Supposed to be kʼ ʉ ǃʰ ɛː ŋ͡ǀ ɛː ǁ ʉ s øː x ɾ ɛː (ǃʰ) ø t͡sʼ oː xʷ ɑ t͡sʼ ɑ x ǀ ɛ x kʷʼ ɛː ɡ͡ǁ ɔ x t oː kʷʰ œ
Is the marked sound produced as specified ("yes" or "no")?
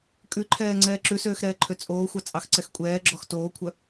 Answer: yes